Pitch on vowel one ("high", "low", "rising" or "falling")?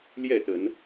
falling